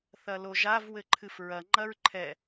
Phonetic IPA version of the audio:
θɐloʒav wɘǃʰɨfɹɐ ŋ͡ǃɐɹǃʰɛ

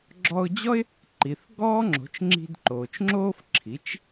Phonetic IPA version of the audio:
ɡ͡ǁɔ˧ʊ̯d͡ʑɔ˥ɪ̯ | ǃi˩θ ɡɔː˥ŋ͡ǁo̤˩˥t͡ʃ ŋ͡ǁi̤˧dǃoː˩t͡ʃŋ͡ǁoː˥f ǁʰi˩˥t͡ʃ

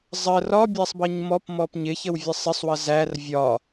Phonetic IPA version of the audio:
zˤə rɒ bʲæsˤbʌɲmɔp mɔpɲɪçəwvʲə sˤɪsˤwʌ zær vʲɒ

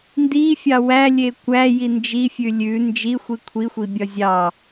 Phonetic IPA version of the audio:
ndifʲɑ wælʲe kʷæji nd͡ʒifʲʉ lʲʉ nd͡ʒixʷi kʷʰixʷibʲɒ zʲɑ

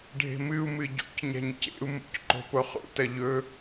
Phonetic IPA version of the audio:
ɖʱe̤mɨu̯mɨ ɟo̰cɲa̤ɲ cḛu̯mṵc ǃo̤poχṵtɐ ʎɵ

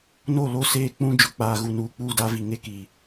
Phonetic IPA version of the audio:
no˦˨lo˦˨ seː˦k͡pũ˦ d͡ʒʊ˨k͡paː˨ɣu˨nuː˨ k͡puː˦˨da˦vi˨ŋe˦ ki˨

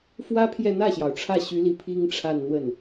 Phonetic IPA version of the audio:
fwä˥pʰjɛ˥˧ n̪ä˥˩ɕjɑ˩ʊ̯ ʈ͡ʂʰä˥˩ɕy˧˥li˧˥ pʰi˥ŋʈ͡ʂʰa˥˧nn̪wə˥˩n

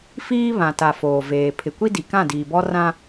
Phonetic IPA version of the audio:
fiː˦βã˨ta˨ foː˨veː˨ pʰɪ˨kʷi˦di˨ kã˦˨diː˨bɔ˦rã˦

